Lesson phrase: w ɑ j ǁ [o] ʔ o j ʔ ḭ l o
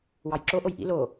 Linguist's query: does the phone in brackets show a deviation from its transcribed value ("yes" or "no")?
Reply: no